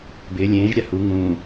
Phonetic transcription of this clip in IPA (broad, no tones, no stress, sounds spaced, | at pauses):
b ɪː lʲ ẽː ʒ ɾʲ a h u ŋ ũː